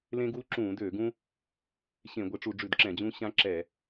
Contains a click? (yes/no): yes